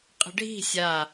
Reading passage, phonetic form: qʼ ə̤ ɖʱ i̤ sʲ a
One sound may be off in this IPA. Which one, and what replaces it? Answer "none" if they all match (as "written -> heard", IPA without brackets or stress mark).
none